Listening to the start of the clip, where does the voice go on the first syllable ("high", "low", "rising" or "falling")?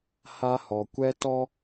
high